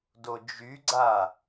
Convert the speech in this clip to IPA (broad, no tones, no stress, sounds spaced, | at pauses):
d o d͡ʒ y ɡ͡ǀ a